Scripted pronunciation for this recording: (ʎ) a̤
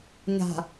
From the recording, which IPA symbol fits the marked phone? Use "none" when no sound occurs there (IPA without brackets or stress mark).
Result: ɲ